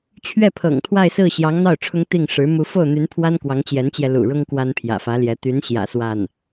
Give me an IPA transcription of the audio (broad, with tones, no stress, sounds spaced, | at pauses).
t͡ɕʰ ɥ ɛ˥˩ pʰ ɤ̰˨˩ ŋ t̪ʰ w a˥˧ ɪ̯ s ɹ̩˥˩ ɕ j ɑ˧˥ ŋ n̪ ɑ˥˩ ʊ̯ ʈ͡ʂʰ ʊ˥ ŋ t̪ i˥˩ ŋ ʂ ɻ̩˧˥ m u˧˥ f o˥˩ ʊ̯ n̪ y˧˥ n pʰ w a˥ n k w ɑ˧˥ ŋ t͡ɕ j ɛ˧˥ n t͡ɕ j ɛ˧ l ṵ˨˩ ɻ ʊ˥ ŋ k w a˥ n pʰ j ä̰˨˩ f ä˧˥ l j ɛ˧˥ t̪ y˧˥ n ɕ j ä̰˨˩ s w a˥˩ n